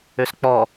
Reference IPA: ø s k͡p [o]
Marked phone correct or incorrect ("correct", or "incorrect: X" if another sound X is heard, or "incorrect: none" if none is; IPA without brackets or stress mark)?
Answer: incorrect: ɔ